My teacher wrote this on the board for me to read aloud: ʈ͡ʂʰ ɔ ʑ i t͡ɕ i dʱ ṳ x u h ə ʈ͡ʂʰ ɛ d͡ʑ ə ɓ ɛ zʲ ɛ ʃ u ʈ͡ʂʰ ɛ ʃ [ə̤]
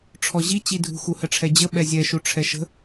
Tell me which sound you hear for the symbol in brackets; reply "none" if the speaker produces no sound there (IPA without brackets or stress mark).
ə̤